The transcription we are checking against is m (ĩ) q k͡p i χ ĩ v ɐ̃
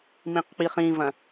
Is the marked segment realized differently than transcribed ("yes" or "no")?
no